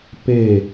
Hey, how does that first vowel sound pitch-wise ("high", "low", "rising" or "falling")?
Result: falling